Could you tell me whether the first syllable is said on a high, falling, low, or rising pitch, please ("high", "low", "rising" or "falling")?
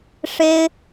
high